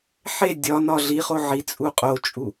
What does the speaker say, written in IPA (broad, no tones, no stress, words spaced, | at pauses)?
ħe dʲɒnɒ ɮiχo ʕit͡sʼu qʼot͡ʃʼu